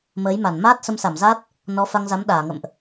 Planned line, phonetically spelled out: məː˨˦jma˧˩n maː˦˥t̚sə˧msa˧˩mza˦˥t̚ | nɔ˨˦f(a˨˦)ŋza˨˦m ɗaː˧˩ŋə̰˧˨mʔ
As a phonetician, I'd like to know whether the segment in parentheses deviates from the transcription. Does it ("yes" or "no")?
yes